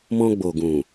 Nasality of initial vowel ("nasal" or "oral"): nasal